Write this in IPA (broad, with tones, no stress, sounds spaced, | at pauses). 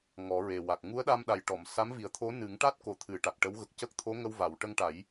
ŋ ɔ˨˩˦ ɹ e˨˩ w a˨˩ k̚ ŋ u˧˥ ə̯ ɗ a˧ m ɗ a˨˩ j ʈ ɔ˨˩˨ m s a˧˥ m v i˨˩ ə̯ t̪ʰ o˧˥ n ɨ˨˩˦ ŋ ʈ a˦˥ t̚ k o˨˩ t̪ʰ ɨ˨˩˦ ʈ a˨˩ k̚ ʈ ə˧˥ w ɣ ə˨˩ k̚ c ə˦˥ k̚ t̪ʰ o˧˥ ŋ ə˧ w v a˨˩˨ w ʈ ə˧ ŋ ʈ a˨˩˦ j